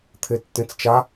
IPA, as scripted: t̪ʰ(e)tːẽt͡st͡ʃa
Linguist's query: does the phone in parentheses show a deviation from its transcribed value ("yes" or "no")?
no